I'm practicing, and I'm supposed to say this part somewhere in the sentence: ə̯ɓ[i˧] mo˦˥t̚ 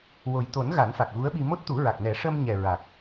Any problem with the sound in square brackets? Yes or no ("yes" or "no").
no